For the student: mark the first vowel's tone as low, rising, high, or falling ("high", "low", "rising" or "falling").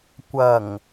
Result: low